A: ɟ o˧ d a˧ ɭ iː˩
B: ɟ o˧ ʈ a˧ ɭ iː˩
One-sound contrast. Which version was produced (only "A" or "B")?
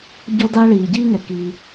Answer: A